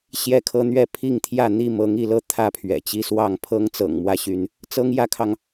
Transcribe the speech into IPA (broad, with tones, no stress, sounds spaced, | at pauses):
ɕ j ɛ˦ kʰ ɤ˦ n̪ ɥ ɛ˥˨ pʰ i˥˨ ŋ t̪ʰ j ä˥˨ n̪ i˥˨ m ɤ˨˦ ŋ i˥˨ l ɤ˥˨ t̪ʰ ä˥˨ pʰ ɥ ɛ̰˨˩ t͡ɕ i˦ s w ɑ˥˨ ŋ pʰ ɤ˦ ŋ t͡s ɤ̰˨˩ ŋ m w ä˦ ɕ y˨˦ n | t͡s ɤ˦ ŋ j ä˦ kʰ ɑ˨ ŋ